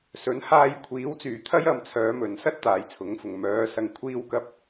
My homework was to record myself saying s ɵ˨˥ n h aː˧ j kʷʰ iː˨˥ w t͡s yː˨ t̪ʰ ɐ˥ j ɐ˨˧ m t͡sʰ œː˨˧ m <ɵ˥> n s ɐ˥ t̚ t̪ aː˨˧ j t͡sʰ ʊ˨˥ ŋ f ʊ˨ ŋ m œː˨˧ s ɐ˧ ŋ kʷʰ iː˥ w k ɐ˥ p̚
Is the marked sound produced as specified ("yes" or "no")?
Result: no